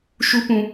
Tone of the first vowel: high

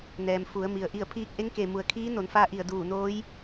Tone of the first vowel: low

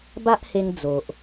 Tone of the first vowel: high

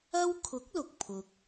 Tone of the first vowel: high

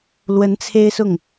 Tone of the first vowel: rising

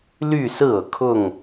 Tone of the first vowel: falling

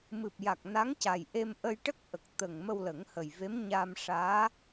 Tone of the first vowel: low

